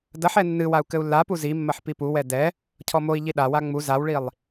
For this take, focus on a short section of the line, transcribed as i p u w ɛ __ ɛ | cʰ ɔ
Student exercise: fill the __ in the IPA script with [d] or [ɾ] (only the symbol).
d